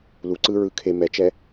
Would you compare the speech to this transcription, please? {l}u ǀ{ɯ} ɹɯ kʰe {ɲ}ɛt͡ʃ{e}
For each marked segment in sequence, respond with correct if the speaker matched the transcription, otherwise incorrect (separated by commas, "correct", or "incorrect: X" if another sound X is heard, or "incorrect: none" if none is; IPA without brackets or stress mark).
correct, correct, incorrect: m, incorrect: ɛ